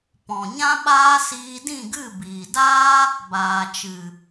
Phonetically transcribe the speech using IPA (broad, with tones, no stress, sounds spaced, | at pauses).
p ɔ̃˨ ɲ ã˦ ɓ aː˦ s iː˧ d ĩ˦˨ ɡ ɨ˦˨ b iː˨ d aː˦ | b aː˨ t͡ʃ ɨ˨